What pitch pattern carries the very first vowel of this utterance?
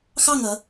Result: falling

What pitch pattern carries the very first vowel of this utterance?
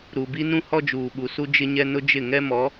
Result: low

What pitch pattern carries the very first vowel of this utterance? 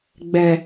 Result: low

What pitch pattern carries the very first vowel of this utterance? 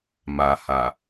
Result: low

